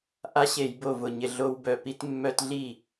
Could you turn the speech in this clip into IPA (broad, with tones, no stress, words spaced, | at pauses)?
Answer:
ʔa˦ɕe˧˩˧jbo˧˩ vʊ˧˩ɲɪ˧˩ ɮo˦wbœ˧˩ pi˦tmːœ˦tɮi˥˨